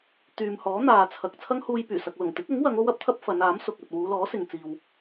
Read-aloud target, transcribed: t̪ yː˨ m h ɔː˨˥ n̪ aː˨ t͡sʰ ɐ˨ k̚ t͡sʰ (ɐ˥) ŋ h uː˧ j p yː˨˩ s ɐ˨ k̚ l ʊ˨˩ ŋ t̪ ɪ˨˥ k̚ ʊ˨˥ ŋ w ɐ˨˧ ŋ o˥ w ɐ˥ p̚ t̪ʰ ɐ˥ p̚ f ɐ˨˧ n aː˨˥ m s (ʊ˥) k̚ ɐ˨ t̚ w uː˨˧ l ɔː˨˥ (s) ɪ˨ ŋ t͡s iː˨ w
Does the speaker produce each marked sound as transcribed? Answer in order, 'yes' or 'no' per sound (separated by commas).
yes, no, yes